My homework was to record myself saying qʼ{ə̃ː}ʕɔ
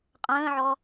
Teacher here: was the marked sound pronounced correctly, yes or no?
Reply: yes